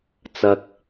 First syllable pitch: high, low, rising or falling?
low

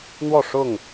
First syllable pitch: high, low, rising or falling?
falling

